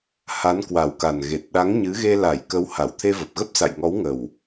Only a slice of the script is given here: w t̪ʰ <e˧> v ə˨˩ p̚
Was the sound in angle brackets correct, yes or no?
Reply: yes